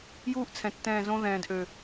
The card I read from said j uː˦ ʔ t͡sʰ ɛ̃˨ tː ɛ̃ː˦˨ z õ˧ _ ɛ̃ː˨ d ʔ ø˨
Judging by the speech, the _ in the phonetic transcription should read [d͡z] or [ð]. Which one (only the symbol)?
ð